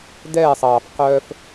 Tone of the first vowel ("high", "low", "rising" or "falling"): falling